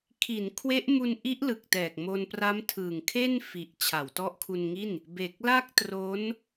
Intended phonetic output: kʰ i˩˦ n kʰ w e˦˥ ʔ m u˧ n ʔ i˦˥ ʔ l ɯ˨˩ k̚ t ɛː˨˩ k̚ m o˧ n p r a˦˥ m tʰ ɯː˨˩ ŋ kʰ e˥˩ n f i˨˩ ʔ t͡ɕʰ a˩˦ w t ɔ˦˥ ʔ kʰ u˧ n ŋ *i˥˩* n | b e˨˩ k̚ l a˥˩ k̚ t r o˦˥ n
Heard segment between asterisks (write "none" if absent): i˥˩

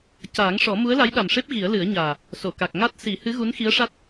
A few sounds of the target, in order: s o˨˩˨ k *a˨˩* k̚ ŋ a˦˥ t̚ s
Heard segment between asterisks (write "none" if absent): a˨˩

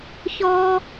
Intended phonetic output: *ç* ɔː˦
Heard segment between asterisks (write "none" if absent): ç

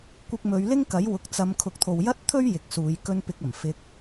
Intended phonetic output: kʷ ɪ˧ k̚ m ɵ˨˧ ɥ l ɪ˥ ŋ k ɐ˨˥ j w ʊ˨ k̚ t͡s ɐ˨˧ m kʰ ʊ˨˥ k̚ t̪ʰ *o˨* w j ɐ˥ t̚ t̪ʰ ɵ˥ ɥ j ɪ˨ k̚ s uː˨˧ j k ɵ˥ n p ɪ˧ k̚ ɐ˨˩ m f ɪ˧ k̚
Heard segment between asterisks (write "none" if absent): o˨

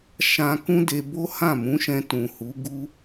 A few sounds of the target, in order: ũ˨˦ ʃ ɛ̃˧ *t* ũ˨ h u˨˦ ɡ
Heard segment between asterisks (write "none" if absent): t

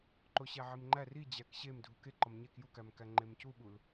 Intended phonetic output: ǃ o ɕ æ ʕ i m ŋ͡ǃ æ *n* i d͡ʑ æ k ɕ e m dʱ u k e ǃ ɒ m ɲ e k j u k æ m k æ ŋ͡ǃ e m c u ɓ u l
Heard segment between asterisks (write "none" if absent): r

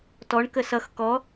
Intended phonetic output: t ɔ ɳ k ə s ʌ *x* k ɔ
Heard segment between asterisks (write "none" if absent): x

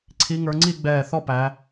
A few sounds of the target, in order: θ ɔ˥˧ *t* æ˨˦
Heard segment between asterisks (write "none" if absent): p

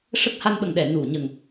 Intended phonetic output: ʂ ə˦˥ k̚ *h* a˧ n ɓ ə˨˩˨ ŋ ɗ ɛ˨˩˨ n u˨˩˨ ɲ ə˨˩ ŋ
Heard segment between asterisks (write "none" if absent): h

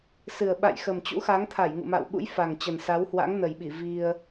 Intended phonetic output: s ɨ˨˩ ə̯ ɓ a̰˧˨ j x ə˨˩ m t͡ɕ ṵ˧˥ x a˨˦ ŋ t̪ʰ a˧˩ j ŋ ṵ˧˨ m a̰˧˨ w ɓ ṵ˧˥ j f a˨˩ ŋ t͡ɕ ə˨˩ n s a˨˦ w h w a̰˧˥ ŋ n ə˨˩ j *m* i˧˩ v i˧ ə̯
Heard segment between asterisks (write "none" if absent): ɓ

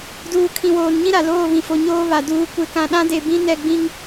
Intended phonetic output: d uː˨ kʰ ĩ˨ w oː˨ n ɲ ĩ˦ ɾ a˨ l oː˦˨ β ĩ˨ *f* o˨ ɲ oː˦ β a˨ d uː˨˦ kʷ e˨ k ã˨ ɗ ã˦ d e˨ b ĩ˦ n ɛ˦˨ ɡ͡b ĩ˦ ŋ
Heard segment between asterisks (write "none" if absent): f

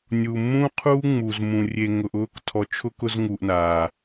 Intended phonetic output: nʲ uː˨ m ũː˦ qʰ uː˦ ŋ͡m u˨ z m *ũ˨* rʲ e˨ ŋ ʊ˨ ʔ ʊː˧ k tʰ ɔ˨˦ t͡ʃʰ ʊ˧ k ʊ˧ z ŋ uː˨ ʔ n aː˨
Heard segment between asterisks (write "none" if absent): ũ˨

